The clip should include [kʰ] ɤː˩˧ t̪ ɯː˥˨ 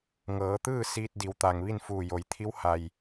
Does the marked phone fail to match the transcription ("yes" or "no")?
yes